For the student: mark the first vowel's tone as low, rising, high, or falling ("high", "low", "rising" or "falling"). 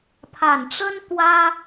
low